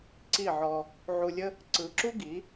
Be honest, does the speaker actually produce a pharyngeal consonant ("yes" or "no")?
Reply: yes